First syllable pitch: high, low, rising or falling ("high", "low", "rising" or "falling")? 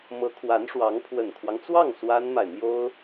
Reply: rising